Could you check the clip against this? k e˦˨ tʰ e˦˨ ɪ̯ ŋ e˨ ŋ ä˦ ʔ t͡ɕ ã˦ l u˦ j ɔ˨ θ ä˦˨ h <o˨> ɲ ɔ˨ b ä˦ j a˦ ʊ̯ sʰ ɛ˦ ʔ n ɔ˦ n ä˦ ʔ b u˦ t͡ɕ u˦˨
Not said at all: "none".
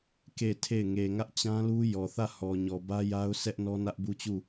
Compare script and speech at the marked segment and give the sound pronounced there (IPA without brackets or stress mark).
ɔ˨